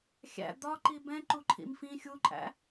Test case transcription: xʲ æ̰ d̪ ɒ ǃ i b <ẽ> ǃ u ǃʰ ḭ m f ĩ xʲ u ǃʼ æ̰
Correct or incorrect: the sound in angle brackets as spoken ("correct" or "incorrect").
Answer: incorrect